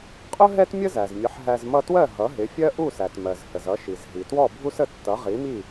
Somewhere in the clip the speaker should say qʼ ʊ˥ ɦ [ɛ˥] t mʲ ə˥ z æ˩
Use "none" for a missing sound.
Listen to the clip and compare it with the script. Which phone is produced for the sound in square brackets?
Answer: ɛ˥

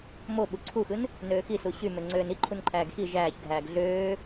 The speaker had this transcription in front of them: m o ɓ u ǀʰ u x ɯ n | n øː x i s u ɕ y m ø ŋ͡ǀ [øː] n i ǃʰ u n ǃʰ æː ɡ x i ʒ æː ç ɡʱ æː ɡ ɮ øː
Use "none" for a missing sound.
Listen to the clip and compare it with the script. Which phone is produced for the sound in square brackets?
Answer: øː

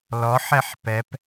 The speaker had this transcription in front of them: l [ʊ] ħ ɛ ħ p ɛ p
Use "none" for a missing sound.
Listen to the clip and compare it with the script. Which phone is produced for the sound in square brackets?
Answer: ɔ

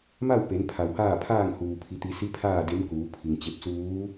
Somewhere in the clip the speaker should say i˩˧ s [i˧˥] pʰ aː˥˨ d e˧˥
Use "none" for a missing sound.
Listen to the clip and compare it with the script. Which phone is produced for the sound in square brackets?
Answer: i˧˥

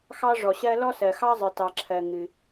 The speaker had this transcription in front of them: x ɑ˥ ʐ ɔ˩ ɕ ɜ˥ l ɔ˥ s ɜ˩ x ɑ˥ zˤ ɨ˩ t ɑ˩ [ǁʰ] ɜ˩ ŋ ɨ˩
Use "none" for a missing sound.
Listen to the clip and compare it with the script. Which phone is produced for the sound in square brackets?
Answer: ǁʰ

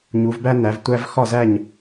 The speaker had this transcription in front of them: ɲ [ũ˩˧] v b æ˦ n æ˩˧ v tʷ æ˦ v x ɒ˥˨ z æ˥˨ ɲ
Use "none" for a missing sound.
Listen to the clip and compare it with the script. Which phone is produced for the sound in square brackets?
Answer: u˩˧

